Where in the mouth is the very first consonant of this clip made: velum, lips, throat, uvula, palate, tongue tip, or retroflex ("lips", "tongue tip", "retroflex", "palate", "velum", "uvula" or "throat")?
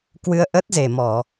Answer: velum